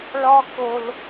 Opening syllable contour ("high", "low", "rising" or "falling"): high